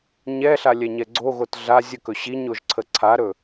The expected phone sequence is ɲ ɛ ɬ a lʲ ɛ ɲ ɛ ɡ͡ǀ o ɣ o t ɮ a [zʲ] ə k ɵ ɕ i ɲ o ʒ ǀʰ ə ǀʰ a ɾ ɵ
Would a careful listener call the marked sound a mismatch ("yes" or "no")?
no